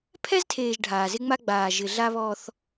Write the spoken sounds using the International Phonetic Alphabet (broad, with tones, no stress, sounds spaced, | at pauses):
pʰ ɛ˦ z tʰ eː˨ ʒ ɖʱ aː˨ z ɪ˦ ŋ͡m a˦ ɡ͡b aː˨ ʒ ɪ˨ ɮ a˦ β ɔ˦ θ